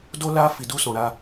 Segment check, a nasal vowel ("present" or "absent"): present